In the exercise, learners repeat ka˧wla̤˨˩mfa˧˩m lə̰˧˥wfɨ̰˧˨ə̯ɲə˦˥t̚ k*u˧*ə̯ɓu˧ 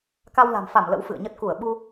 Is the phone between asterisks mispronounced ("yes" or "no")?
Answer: yes